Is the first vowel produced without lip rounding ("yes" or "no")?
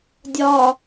no